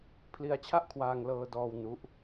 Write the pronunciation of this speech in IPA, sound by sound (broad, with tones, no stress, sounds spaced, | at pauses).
pʰ l i˧ a̯ t͡ɕʰ a˥˩ ʔ kʰ w aː˧ ŋ l ɤː˧ d ɔː˧ w n u˦˥ ʔ